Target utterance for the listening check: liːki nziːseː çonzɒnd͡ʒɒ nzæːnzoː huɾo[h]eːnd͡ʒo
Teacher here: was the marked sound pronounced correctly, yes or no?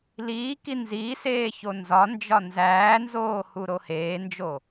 yes